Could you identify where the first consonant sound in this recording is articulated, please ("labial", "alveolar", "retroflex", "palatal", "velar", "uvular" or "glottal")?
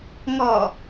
velar